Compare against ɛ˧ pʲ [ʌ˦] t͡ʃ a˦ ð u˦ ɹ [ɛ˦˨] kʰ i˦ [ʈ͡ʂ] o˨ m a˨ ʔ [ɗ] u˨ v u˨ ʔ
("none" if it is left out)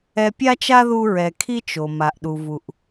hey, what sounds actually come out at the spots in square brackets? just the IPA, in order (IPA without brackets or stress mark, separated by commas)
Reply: a˦, ɛ˧, t͡ʃ, ɗ